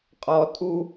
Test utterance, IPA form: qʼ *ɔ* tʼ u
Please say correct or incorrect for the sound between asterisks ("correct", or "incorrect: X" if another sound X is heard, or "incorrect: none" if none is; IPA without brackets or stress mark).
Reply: correct